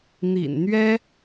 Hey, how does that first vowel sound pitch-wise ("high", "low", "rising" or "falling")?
low